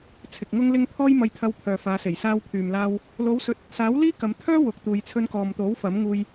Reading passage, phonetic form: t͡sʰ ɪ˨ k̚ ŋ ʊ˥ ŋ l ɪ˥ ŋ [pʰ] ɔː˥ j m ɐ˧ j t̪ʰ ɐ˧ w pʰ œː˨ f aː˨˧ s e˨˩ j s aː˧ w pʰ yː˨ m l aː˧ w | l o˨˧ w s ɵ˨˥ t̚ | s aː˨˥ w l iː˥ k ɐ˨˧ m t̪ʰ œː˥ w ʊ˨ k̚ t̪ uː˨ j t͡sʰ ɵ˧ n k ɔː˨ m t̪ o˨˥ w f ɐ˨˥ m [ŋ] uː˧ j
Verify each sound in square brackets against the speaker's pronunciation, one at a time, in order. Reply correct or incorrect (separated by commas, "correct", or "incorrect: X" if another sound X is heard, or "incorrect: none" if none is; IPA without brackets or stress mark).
correct, correct